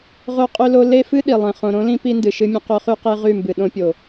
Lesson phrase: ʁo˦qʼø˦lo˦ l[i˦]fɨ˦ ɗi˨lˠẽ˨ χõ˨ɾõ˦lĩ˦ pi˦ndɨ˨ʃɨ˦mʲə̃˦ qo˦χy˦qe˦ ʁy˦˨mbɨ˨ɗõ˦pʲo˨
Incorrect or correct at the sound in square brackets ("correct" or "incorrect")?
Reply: incorrect